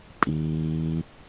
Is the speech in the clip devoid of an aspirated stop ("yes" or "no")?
yes